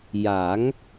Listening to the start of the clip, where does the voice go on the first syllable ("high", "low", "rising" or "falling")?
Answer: rising